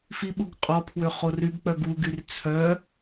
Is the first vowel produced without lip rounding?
yes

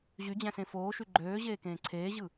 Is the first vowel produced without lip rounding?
no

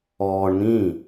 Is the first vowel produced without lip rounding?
no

